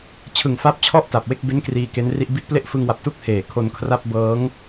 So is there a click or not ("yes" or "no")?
no